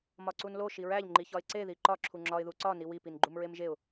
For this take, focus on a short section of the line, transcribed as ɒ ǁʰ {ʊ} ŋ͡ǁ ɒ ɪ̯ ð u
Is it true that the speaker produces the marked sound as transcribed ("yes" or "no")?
no